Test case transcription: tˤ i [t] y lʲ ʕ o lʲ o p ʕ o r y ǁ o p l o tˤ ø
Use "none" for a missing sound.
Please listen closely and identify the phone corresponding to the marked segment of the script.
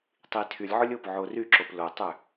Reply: tʰ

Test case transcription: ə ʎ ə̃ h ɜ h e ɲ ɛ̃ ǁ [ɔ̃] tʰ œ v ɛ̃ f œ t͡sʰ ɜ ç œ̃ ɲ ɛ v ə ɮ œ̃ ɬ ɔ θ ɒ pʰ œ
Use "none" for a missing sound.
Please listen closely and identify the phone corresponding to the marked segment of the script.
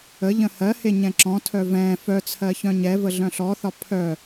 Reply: ɔ̃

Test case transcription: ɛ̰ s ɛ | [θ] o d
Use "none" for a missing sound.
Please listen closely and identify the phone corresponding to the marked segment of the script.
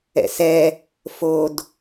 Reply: f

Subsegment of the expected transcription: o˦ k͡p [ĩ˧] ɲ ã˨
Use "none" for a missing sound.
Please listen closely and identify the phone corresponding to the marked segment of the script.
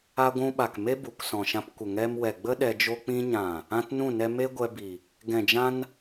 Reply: ĩ˦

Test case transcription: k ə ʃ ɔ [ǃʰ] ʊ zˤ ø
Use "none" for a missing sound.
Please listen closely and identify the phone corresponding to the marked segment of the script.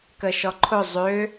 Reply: ǃʰ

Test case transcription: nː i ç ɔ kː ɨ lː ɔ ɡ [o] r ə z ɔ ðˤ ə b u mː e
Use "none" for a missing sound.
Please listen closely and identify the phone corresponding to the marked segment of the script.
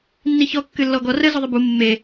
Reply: ɔ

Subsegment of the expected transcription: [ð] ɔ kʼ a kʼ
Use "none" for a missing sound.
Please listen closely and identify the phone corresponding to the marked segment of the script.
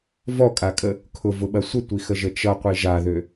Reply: v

